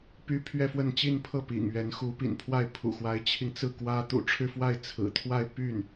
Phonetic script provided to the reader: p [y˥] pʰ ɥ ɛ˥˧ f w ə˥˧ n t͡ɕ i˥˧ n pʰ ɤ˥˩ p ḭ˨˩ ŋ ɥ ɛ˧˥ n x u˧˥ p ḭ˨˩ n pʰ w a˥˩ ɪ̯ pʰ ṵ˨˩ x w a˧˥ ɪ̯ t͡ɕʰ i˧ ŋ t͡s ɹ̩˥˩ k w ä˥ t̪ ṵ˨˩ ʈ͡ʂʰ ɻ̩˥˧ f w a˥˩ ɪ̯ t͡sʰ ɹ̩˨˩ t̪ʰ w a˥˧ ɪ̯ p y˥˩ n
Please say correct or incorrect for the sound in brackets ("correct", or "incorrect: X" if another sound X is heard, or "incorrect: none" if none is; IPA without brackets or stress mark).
correct